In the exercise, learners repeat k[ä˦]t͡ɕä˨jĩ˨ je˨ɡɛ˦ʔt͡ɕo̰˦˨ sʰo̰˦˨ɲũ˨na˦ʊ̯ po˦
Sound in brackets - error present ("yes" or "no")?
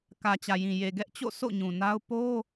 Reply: yes